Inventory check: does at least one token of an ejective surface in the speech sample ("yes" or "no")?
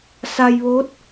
no